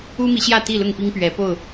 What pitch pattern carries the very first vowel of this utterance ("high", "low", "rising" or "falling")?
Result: high